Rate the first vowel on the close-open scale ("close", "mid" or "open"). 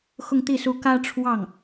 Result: close